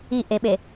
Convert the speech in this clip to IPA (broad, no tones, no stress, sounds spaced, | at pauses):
i ʔ e ɓ e